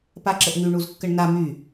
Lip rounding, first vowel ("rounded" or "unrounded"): unrounded